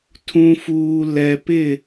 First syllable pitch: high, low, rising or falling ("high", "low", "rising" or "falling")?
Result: low